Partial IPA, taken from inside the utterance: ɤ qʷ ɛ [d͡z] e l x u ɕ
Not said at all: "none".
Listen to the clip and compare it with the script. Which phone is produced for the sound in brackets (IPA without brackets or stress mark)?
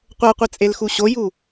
t͡sʼ